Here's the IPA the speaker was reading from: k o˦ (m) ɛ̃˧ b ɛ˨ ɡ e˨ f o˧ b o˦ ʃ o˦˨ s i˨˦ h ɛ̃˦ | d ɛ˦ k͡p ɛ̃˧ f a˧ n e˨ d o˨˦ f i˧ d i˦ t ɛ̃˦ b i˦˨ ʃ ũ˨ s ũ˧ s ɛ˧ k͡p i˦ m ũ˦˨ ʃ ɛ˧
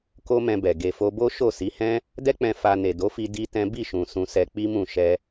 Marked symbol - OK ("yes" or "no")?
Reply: yes